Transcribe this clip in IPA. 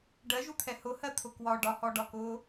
ɖ ɜ ʒ u t̪ʰ ɛ h ʊ h ɜ t̪ʰ ʊ k w ɒ ɖ ɒ h ɔ ɖ ɒ k ʊː

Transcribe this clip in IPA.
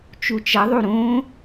t͡ʃ u t͡ʃ ʌ ðˤ u ɾ õ

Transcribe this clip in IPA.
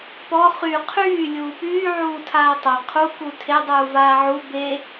p ɔ χ y qʰ yː lʲ uː p yː ʕ uː tʰ aː tˤ a qʰ u k u tʰ e dˤ uː v aː ʕ u b e

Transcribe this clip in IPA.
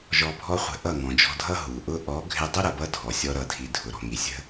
ʒ ɔ˧ bʱ ɔ˦ χʷ ə̤˧ ʔ ʌ˦˨ ŋ ɔ̃˨ d͡ʒ ɔ̤˧ dʱ ʌ˦ ɦ u˨ ʔ ʊ˦ ʔ ɔ˨˦ ɡʱ ɪ˧ dˤ ɪ˦ ɾ ʌ˨ b ʌ˦ dʱ ɔ˨ sʲ ɔ˦ ɾ ʌ˧ dʱ i˧ dʱ ʊ˨ ɾ ɔ̤˨ ŋ i˨ sʲ ə̤˦

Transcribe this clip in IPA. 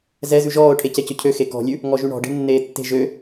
z ɛ z ʉ ʒ ɔː ʊ̯ ʈʰ e c ɛ c ɵ cʰ ø x e k ɔ̤ lʲ ʉ | ŋ ɔ ʒ y ɳ ɔ̤ ɖ e̤ nː eː tː e̤ ʒ ø

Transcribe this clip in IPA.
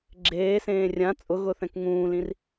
ɡ͡ǁ eː s ẽː rʲ ã t͡sʼ ʊ ɣ ʊ θ ɛ̃ k ŋ ũː l ĩ r

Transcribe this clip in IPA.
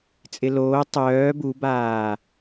t͡sʼ ɪ l oː tˤ œː b u b aː

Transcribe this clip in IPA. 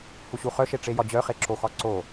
h u ɕ u χ œ ʃ e ʈ͡ʂ e j ɒ d͡ʑ œ χ e ǁ o x ɒ ǀ o

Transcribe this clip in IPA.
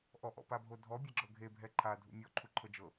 ʔ ɔ ʔ ɔ̰ p a bʱ o dʱ ɔ bʲ ɛ ɡ͡ǁ ɤ ɡʱ e bʱ ɛ ǃʰ a dʱ ṵ mʲ ɔ ǃʰ u ǃʰ ɤ d͡ʒ ɤ

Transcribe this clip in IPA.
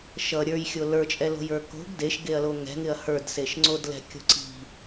ʃ ʌ ɾʲ ə˞ j xʲ o l ə˞ t͡ʃʼ ɛ l o̤ j ə˞ k o̤ ɡ d e ʃ ɡ e ɐ̯ l o ŋ ɛ̤ ŋ ɪ ɐ̯ h ə˞ d s e ʃ ŋ͡ǀ o d l ɛ̤ kʲ o̤ ǀ i̤

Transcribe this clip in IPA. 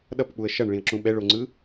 ɗ ʌ p k͡p u ə̯ ʃ ʌ ɳ ɭ ĩ ə̯ ǁ ũ ɓ ɛ ɭ o ŋ͡ǀ ɯ

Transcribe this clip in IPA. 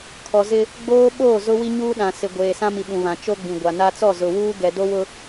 kʰ ɔ˨ z ɪ˦ | ɡ͡b oː˦ ɓ oː˦˨ z ʊ˦ w i˦ ɲ uː˦ ɗ ã˨ s ɪ˨ ɡʷ eː˨ s ã˦ m i˨ ɓ ũ˨ β ã˨ t͡ʃ o˦ ɡ͡b ĩ˨ ɡʷ a˨ n a˦ t͡s ɔ˦˨ z ʊ˨ w uː˦ ɡ ɛ˨ d o˦ w ʊ˦

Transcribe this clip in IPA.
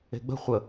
e̤ ɡ͡b ə̤ χʷ ə

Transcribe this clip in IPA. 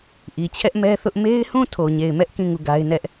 ʔ i˨ t͡ɕʰ ɛ˦ ʔ m ɛ˦ θ ʊ˦ ʔ m e˦ ɪ̯ h ũ˦˨ tʰ o˨ ɲ e˨ ɪ̯ m ɛ˦ ʔ k ĩ˦˨ ŋ u˦˨ ɡ a˦ ɪ̯ n ɛ˦ ʔ

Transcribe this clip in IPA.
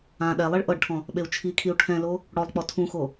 ã ɗ ɛ lˠ i ɭ ʔ ɤ ɖ ʈʰ ɔ̃ | ɓ e u̯ t͡ʃʰ i kʰ i u̯ ʈʰ ɛ̃ l o | ɽ ɔ lˠ k͡p ɔ tʰ ũ x o

